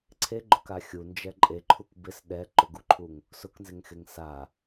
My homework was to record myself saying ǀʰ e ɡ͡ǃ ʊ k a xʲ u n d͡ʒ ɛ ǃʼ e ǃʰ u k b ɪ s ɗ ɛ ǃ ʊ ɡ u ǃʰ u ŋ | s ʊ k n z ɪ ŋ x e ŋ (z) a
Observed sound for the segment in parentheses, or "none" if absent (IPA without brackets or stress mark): s